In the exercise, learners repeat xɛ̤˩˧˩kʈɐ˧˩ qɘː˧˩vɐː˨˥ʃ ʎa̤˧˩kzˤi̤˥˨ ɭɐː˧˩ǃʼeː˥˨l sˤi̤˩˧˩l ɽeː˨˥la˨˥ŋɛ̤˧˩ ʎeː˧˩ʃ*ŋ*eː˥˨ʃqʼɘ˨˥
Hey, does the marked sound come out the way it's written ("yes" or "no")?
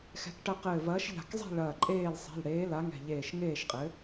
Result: yes